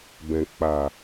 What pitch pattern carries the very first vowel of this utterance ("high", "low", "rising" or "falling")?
low